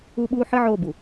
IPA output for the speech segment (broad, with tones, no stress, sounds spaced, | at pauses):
u˦ ɓ uː˦ ħ ɨ˦ ʕ o˦˨ b u˨